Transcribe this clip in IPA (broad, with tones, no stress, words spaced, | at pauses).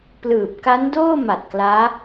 plɯː˨˩p̚ka˦˥ndoː˥˩ma˨˩t̚ klaː˦˥